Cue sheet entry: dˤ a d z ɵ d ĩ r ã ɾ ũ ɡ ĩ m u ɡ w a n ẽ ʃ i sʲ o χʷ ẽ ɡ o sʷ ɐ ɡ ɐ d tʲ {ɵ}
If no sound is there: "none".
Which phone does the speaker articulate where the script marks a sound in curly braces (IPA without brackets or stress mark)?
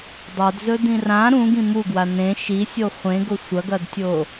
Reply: o